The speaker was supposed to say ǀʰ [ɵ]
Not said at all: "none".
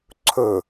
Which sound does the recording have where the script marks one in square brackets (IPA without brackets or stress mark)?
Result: ɵ